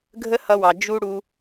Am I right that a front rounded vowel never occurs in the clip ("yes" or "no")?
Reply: yes